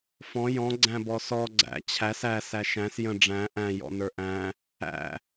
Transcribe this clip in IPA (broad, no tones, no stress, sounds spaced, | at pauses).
f ɔ̃ j ɔ̃ ɡ͡ǀ æ̃ b ɔ s ɔ ɡ͡ǀ æ̰ t͡ɕʰ æ s æ s æ ʃ æ̃ s j ə̃ ɖ͡ʐ æ̃ ʔ æ̃ j ɔ̰ n ə˞ ʔ æ̃ | æ̰